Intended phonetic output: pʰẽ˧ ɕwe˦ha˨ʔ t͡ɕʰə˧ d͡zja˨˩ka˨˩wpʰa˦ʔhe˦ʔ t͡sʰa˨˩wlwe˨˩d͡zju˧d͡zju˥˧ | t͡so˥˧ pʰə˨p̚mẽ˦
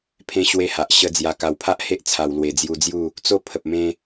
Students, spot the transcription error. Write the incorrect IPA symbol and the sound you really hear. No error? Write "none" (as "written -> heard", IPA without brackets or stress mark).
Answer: t͡ɕʰ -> ɕ